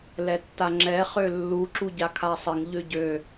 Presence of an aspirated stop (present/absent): present